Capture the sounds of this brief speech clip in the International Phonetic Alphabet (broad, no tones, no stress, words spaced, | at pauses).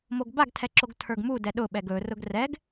moɡbaɡ tʰɛǁoɡtʰə˞ɡmu dɛɗʊ ɓɛɡɵ rʊɡrɛɡ